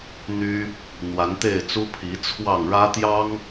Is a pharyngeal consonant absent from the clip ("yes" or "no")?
yes